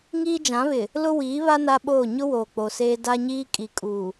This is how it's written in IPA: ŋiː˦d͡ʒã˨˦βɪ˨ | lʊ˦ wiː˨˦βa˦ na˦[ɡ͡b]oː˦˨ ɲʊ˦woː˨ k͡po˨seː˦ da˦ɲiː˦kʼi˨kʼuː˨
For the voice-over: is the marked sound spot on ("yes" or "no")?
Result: no